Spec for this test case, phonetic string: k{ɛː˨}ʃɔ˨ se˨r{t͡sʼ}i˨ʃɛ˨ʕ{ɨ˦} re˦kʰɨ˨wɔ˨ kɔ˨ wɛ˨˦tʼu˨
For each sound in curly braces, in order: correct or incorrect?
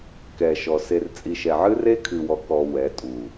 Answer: incorrect: ɛ˨, correct, correct

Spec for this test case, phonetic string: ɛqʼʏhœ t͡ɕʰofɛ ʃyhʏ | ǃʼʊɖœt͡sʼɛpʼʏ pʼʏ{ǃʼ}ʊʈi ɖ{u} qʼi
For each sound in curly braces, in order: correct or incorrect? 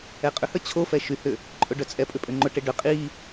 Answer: incorrect: ŋ͡ǃ, incorrect: ʏ

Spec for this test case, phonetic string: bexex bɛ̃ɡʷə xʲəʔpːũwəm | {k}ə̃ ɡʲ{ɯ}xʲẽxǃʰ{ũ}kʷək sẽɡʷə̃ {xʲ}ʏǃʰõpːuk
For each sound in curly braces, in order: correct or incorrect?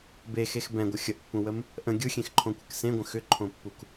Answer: incorrect: ʔ, correct, incorrect: õ, incorrect: x

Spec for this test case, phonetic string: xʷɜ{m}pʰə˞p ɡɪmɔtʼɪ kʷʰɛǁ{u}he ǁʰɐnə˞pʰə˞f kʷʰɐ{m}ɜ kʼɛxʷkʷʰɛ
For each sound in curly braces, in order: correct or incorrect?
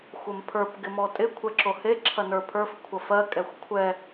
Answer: correct, incorrect: o, incorrect: f

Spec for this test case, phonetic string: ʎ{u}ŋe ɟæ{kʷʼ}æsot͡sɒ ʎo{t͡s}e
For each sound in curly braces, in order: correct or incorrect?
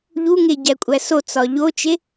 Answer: correct, correct, incorrect: t͡ʃ

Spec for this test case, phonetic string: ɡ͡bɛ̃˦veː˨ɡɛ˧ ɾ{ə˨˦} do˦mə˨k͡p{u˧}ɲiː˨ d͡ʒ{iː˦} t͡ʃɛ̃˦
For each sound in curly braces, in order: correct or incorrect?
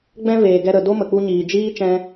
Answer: incorrect: ə˨, correct, correct

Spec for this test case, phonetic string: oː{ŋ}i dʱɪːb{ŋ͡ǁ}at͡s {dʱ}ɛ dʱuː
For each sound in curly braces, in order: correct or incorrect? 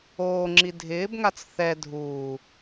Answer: incorrect: ŋ͡ǁ, incorrect: ŋ, incorrect: θ

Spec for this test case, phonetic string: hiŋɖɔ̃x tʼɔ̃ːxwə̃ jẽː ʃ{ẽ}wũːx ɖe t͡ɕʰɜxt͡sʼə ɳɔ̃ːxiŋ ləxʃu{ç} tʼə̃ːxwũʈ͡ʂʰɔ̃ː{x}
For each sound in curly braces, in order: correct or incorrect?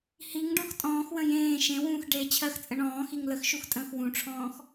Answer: correct, incorrect: x, correct

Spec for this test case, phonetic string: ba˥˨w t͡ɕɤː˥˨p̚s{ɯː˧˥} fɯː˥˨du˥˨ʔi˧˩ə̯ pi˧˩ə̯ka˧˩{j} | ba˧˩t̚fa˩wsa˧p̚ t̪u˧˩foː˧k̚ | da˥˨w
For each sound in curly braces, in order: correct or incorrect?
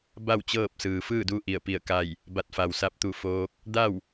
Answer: incorrect: ɯː˩, correct

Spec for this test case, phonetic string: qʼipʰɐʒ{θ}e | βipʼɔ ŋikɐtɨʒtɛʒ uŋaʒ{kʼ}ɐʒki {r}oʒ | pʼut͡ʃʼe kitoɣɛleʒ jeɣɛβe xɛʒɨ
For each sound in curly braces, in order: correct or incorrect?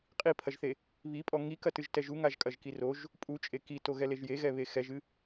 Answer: correct, correct, correct

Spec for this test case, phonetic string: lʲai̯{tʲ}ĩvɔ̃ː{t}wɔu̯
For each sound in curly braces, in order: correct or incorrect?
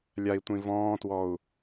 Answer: incorrect: tʷ, correct

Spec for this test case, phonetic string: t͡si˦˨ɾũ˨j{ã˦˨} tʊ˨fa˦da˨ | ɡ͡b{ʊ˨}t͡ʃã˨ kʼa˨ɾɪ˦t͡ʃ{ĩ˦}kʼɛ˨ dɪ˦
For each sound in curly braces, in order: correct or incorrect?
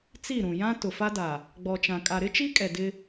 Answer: incorrect: ã˦, incorrect: ɔ˨, incorrect: i˦

